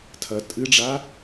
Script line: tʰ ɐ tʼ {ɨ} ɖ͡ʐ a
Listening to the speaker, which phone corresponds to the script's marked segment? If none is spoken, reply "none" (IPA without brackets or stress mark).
ɨ